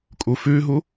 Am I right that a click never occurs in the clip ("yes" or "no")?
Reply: yes